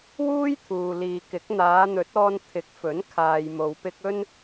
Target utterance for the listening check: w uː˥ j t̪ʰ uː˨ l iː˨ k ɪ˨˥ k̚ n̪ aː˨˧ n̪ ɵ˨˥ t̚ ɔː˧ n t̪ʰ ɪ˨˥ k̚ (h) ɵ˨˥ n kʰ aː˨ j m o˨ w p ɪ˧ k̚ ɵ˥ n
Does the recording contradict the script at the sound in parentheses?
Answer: yes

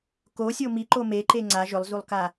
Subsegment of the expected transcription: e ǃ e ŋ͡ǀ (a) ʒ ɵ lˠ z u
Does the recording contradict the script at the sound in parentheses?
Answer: no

